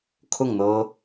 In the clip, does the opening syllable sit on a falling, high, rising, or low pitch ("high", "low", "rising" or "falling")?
falling